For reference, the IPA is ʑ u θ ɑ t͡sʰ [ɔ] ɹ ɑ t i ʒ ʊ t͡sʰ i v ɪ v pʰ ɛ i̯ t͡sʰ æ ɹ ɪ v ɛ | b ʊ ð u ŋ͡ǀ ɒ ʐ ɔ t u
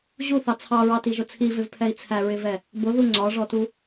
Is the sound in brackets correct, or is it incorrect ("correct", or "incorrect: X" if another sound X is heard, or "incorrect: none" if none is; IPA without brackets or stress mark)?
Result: incorrect: ɑ